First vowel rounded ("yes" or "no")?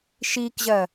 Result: no